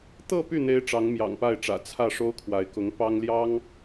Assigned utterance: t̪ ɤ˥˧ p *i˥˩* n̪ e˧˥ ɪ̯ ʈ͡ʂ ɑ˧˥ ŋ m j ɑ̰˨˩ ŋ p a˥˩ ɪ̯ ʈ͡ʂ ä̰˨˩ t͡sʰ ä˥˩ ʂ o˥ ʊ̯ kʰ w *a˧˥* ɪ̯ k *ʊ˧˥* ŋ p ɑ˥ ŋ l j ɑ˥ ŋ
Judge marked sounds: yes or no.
no, yes, yes

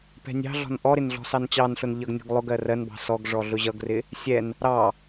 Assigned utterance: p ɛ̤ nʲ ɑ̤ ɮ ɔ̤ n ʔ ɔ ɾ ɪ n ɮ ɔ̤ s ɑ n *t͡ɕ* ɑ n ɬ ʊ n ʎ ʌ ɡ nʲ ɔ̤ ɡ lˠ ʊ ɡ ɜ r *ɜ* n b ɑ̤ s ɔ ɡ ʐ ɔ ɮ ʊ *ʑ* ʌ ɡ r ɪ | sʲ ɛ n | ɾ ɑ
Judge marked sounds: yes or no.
yes, yes, yes

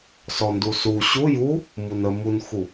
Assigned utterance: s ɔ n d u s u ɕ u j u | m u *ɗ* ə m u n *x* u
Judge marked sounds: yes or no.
no, yes

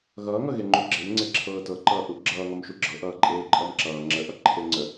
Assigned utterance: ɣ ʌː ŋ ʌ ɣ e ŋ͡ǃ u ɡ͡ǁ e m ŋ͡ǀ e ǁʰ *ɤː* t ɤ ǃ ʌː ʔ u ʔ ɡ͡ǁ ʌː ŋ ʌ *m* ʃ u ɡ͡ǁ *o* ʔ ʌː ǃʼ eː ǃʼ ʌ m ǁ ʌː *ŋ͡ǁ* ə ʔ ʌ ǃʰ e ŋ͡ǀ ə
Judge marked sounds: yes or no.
yes, yes, no, yes

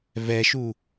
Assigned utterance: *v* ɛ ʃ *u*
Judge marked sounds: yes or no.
yes, yes

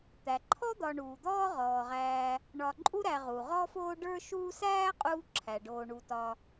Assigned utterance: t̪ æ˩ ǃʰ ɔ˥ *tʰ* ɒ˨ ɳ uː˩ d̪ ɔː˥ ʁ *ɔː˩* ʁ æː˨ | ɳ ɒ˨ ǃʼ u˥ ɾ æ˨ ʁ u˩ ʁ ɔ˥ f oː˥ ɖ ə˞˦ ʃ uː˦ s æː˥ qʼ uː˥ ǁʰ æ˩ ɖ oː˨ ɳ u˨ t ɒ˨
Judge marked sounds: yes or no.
no, yes

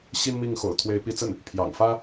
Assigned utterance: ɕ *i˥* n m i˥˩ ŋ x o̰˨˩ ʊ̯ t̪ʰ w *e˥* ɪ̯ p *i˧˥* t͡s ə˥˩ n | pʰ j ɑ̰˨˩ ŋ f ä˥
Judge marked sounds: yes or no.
yes, no, yes

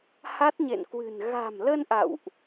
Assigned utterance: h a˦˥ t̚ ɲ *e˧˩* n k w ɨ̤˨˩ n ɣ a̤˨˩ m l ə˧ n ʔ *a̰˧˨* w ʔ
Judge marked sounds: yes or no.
no, yes

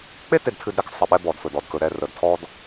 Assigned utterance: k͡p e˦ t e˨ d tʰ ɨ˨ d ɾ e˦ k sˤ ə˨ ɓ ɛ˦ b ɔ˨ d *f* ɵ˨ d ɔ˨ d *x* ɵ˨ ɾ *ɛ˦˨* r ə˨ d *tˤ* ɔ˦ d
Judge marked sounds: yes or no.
yes, no, yes, no

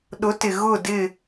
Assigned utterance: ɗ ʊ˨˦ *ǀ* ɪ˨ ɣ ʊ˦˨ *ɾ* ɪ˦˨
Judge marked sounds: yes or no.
no, no

